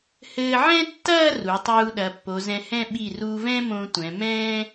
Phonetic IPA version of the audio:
h ɘː˧ ʕ ɛ̃˥ tː ɐː˥˧ r u˩˧ tˤ uː˧ ɗ ɐ˩˧ pː o˩˧ z ɛ̃˧ h ɛ̃˥˧ ɓ i˧˩ r uː˧ v ɛ̃ː˥ m õ˧ tʷ ɛ̃˩˧ m ɛ̃ː˥

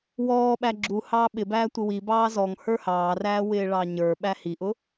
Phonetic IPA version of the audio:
w ɔː ɓ æ ɡ͡ǁ u h ɑː ɓ ɪ b æː tʷ ɪ w i b ɑː z ɔ ŋ h ə˞ h ɑː r æː w ɪː ɭ ɑ ɲ ə˞ ɓ æ h i ʔ ʊ

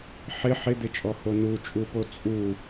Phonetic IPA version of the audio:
ħ ɪ ħ ɪ d̪ ɪ t͡ʃʼ ɔ h o n u t͡ʃʼ u p o t͡sʼ u

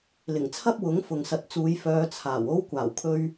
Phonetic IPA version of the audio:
l ɪ˨˩ ŋ t͡sʰ ɐ˥ p̚ w ʊ˨˥ ŋ f ʊ˨ ŋ s ɐ˨˥ t̚ t͡s uː˨˧ j f œː˧ t͡sʰ aː˨˩ w o˥ w kʷ aː˨˩ w kʰ ɵ˧ ɥ

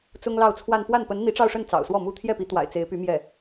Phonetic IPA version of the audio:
t͡s ʊ˥ ŋ l ɑ˥˧ ʊ̯ t͡sʰ w a˥˧ n p w a˥˩ n p ə˧˥ n n̪ i˧˥ ʈ͡ʂ ɑ˥˧ ʊ̯ ʂ ə˥˩ n t͡s ɑ̰˨˩ ʊ̯ s w ɔ˥˩ m u˥ t̪ʰ j ɛ˥˩ p i˧˥ t̪ w a̰˨˩ ɪ̯ t͡s e˧˥ ɪ̯ p y˧˥ m j ɛ˥˩

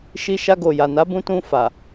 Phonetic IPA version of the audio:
ʃ i˧ ʃ a˧ ɡ o˨ j a˨ n a˨˦ b ũ˧ t ũ˧ f a˨

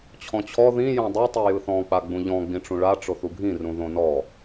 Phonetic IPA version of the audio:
t͡ɕʰ ɔ̃ t͡ɕʰ ɔ ð ĩ j ɔ̃ dˤ i tˤ i j ɯ θ ɔ̃ k͡p a ɡ͡b ũ ʎ ɔ̃ ɡ͡b ĩ ʈ͡ʂ ũ ɭ a ʈ͡ʂ o θ u ɡʱ ĩ r ũ ð õ n ɔ

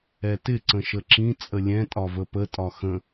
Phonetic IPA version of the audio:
ɛ t ɪ ǀ ə̃ ʃ ə ǁ ĩ t͡sʼ ə lʲ ɛ̃ tʼ ɒ v ə p ə tʼ ɒ x ə̃

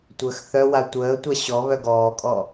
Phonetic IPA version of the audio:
tʷ əː x θ œ w a tʷ əː tʷ a ɕ ɔ β œ ɡ ɔː kʼ ɔ

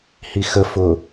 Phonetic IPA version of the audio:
h i x ə f ʊ

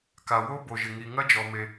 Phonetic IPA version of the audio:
k a˩ w o˦˥ b o˩ ʒ ɪ˩ ŋ i˩ ŋ ɐ˦˥ d͡ʒ ɔ˩ m e˩

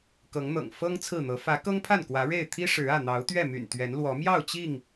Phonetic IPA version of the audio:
k ɤ˨˦ ŋ n̪ ɤ̰˨˩ ŋ f ɤ˦ ŋ t͡sʰ ɹ̩˥˨ n̪ ɤ˨˦ f ä˨˦ k ɤ˦ ŋ pʰ a˥˨ n k w ä˨˦ ɻ e˥˨ ɪ̯ t̪ʰ i˦ ʂ ɻ̩˨˦ ä˥˨ n̪ ɑ˨˦ ʊ̯ t̪ ɥ ɛ˥˨ m y̰˨˩ n t̪ ɥ ɛ˨˦ n l w ɔ˨˦ m j ɑ˥˨ ʊ̯ t͡ɕ i˥˨ ŋ

